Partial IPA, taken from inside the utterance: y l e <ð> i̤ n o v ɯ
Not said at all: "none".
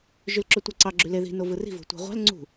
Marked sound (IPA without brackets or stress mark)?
ð